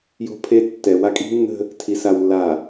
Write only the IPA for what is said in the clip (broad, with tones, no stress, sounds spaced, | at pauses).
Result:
j o̤˦ pʰ e˦ tː ɛ˨ w a˦ kʼ i̤˦ nː ə̤˦ | tʰ i˨ s a˨ w lː a˨